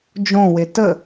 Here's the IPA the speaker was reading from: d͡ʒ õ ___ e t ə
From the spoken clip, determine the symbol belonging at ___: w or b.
w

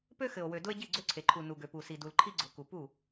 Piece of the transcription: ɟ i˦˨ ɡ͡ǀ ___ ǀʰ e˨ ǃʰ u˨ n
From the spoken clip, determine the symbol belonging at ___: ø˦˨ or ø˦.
ø˦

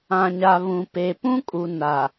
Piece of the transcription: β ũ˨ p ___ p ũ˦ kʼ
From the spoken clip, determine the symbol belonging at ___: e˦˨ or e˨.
e˨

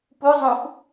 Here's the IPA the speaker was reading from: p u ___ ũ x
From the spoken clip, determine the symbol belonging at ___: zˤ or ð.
zˤ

